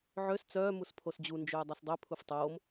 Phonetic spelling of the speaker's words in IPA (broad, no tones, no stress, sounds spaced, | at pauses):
ʕ ø s t͡s œː m u s pʰ o s d͡ʑ u n d͡ʒ øː dˤ œ s dˤ ø pʰ u f tˤ oː m